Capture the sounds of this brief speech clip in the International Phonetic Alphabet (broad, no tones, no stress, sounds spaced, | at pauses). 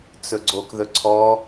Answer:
t͡s ɵ ɡ͡ǀ o k ð ɵ ǀʰ ɔ